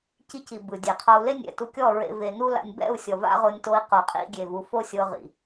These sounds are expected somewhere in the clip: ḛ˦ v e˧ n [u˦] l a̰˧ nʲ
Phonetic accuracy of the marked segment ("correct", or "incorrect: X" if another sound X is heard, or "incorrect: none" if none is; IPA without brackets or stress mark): correct